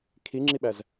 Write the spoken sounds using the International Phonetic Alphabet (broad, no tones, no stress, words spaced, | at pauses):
kʰiŋ͡ǁiɓæz